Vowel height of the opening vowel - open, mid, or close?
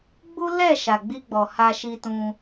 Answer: close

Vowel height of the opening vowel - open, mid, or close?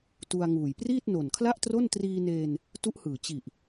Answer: close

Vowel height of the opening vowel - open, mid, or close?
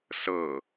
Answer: mid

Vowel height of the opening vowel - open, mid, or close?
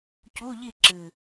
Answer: close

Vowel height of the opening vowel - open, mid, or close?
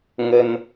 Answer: mid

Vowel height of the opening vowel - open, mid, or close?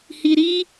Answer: close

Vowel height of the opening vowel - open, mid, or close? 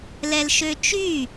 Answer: mid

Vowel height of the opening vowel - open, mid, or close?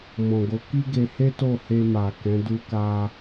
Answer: mid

